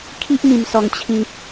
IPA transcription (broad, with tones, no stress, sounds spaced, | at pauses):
kʰ i˦ ʔ m ĩ˨˩ m s ɔ˨˩ ŋ t͡ɕʰ ĩ˨ p̚